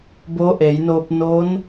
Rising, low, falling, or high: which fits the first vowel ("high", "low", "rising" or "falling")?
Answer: rising